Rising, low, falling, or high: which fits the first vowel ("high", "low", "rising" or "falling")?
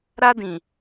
high